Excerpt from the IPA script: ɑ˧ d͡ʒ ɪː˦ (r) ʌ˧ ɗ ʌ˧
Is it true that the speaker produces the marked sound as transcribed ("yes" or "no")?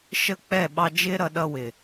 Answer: no